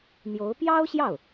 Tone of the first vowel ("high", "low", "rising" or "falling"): rising